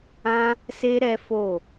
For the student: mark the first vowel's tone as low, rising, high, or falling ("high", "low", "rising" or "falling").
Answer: high